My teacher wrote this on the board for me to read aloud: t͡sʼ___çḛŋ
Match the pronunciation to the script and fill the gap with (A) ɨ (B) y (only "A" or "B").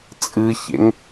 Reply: A